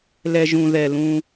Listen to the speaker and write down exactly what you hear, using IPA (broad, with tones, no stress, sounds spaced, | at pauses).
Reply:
l ɛ˨ ʒ ũ˨ ð ɛ˨ l ũ˦